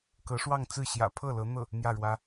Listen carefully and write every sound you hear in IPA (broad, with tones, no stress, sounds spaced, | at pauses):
k ɤ˧˥ ʂ w ɑ˥˧ ŋ t͡s ɹ̩˥˩ ɕ j ä̰˨˩ pʰ ɤ˥˩ l ɤ˧˥ n̪ ɤ˥˩ | n̪ j ä˥˩ ɻ w ä˥